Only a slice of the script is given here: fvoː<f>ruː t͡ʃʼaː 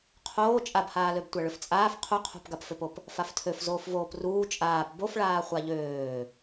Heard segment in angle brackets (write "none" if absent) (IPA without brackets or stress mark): p